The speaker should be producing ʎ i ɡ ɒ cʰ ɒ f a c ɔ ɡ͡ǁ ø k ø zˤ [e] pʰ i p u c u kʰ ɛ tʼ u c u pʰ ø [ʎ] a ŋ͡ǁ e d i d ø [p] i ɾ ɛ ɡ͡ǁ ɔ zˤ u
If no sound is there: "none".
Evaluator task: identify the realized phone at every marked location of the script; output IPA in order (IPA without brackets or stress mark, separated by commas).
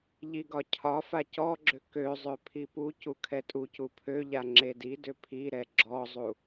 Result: ø, ʎ, pʰ